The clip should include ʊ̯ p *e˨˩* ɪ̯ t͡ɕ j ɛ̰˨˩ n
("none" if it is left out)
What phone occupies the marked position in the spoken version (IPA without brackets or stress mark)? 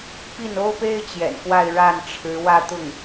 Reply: e˥